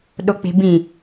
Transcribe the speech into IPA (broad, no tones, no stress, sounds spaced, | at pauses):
ɗ o k͡p e̤ b ĩ